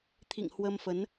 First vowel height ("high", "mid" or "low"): high